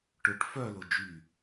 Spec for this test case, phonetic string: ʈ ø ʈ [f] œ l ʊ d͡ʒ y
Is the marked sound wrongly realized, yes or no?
no